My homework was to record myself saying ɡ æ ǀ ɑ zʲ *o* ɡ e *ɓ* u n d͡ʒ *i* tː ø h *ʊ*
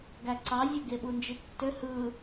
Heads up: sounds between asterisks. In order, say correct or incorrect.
correct, correct, correct, incorrect: ɯ

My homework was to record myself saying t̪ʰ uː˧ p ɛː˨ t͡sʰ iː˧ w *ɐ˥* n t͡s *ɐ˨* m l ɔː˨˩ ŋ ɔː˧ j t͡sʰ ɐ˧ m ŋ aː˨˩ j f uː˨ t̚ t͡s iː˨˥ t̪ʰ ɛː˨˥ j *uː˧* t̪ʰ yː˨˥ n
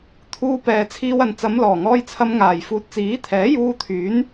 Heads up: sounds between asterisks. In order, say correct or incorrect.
incorrect: ɐ˨, incorrect: ɐ˨˧, correct

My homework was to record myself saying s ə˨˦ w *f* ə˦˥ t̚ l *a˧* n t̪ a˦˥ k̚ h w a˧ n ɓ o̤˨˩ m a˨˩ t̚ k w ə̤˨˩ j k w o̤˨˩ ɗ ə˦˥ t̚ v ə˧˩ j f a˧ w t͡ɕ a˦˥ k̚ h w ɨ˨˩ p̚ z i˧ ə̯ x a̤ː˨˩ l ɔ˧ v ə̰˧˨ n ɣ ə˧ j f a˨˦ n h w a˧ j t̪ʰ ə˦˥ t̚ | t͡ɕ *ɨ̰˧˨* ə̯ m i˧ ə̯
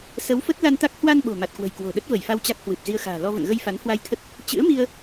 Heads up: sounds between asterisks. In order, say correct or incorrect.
correct, correct, incorrect: ɨ̰˧˥

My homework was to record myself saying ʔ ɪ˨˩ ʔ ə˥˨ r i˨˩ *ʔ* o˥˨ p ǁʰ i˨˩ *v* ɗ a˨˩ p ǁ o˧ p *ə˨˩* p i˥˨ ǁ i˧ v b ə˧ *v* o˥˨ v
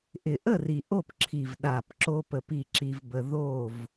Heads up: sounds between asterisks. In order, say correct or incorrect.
correct, correct, correct, incorrect: ð

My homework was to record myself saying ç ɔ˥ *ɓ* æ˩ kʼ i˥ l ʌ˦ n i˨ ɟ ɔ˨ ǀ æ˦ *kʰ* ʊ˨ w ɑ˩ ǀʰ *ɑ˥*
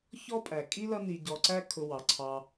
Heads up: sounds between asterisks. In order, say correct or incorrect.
incorrect: pʼ, correct, incorrect: ɑ˨

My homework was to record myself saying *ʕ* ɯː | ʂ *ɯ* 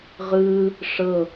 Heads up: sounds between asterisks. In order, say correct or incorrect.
incorrect: ʁ, incorrect: ɤ

